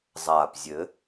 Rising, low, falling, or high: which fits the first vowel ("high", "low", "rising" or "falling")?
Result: low